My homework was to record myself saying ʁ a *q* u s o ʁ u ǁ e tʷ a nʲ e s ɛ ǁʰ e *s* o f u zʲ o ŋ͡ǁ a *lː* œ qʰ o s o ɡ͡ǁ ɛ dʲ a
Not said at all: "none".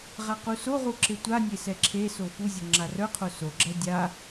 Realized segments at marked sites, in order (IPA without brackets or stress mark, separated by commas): q, s, r